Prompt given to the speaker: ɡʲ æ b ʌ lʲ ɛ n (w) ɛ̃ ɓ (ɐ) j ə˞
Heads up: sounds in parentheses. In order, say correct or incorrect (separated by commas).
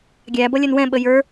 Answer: correct, incorrect